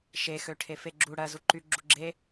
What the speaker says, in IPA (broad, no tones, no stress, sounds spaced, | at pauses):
ʃ e x ø ʈʰ e f e ɡ͡ǁ u ɽ ɜ z u ǃ y ɡ͡ǁ u ɡ͡ǁ e